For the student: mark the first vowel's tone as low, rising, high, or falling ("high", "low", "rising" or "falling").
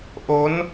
rising